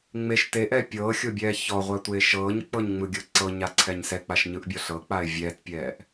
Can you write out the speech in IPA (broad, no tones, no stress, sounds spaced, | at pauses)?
ŋ͡m e ʃ t e ʔ ɛ pʲ ɤː xʲ o bʲ ɛː ç ɔ ʁʷ a tʷ eː ʃ ɤː ɲ k͡p ɤ ɲ ŋ͡m ɯ ɡʲ ɤ ǀ ɤ ɲ a ǀʰ ɛ ɲ s ɛ k͡p a ʃ ɲ ɯ ʔ bʲ ɔ ɬ ɤ k͡p a ɪ̯ vʲ ɛː t pʲ ɛː ʔ